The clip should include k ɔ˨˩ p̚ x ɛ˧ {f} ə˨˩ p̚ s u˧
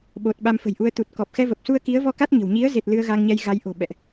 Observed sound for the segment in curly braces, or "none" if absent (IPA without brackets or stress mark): v